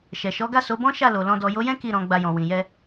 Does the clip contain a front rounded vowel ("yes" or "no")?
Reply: no